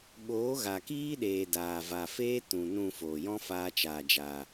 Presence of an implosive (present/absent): present